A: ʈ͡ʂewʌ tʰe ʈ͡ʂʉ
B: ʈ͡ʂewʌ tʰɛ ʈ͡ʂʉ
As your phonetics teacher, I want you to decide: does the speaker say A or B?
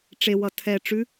B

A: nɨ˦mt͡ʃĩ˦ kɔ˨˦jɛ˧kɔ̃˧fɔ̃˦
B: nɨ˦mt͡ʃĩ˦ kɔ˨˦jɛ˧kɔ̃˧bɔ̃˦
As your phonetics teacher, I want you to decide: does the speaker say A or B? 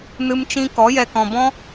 B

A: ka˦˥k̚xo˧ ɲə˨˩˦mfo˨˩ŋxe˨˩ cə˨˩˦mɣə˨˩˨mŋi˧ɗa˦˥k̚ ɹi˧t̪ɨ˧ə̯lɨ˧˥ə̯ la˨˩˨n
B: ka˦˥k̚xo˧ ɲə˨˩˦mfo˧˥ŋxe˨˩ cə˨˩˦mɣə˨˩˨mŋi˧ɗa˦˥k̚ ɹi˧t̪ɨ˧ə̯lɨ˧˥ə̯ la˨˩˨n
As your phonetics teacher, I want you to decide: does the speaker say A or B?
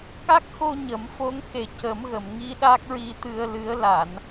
B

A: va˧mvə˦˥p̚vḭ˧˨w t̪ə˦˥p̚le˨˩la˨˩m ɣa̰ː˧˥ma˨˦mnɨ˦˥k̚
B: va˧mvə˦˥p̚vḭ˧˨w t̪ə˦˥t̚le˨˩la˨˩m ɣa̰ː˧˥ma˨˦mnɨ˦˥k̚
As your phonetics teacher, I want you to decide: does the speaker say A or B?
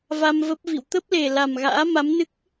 A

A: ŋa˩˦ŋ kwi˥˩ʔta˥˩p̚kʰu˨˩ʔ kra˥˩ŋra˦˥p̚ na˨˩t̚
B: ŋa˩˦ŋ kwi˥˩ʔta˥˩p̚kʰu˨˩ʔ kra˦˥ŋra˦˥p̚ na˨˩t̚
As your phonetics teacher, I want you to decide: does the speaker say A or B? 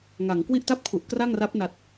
A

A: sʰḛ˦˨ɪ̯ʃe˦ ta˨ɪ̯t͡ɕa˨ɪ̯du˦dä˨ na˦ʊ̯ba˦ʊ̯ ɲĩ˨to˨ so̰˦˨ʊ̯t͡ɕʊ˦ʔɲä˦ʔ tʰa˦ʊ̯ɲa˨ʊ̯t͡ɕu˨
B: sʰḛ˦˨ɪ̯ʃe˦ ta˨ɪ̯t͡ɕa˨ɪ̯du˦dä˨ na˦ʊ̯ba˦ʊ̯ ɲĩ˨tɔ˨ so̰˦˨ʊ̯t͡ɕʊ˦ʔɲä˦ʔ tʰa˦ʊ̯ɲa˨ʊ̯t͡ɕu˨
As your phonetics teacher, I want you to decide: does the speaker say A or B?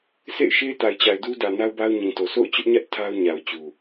A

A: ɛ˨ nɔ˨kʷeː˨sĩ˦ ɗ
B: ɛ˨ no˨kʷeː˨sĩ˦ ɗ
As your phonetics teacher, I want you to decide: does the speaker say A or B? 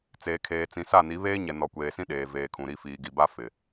A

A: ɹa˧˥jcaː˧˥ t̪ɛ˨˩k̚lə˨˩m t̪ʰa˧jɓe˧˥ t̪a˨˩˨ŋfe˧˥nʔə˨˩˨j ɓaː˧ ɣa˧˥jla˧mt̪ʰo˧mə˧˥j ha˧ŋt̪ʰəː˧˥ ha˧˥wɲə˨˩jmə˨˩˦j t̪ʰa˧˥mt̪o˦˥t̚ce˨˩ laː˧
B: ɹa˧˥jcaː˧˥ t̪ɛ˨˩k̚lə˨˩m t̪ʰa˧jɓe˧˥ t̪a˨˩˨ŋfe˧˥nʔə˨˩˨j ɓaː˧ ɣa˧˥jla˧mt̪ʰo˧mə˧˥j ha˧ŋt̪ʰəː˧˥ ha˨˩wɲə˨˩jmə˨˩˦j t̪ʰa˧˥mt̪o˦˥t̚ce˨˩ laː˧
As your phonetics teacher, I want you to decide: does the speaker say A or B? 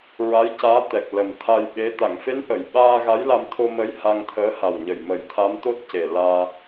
B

